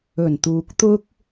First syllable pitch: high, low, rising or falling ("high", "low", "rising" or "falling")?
low